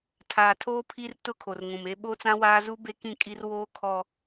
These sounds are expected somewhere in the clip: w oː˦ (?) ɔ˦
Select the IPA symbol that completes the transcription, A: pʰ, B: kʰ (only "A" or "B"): B